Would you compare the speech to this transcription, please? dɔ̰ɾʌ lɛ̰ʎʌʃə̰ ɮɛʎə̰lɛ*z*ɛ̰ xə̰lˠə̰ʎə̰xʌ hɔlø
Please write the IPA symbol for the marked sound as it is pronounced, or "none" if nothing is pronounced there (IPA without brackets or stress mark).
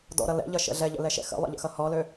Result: ʃ